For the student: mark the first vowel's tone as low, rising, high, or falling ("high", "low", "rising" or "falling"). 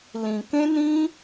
low